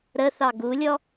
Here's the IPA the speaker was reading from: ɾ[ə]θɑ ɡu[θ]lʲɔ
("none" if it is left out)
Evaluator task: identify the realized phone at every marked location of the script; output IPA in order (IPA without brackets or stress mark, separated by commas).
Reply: ə, none